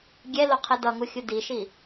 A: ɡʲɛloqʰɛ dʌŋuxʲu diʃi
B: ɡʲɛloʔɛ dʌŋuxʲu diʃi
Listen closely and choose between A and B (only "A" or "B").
A